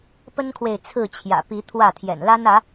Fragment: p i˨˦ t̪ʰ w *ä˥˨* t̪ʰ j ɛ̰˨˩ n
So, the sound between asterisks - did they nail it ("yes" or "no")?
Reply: yes